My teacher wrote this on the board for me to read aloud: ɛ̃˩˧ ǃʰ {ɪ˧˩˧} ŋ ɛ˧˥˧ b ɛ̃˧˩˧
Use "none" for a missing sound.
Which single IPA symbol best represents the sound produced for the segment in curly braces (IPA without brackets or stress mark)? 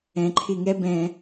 ɪ˧˩˧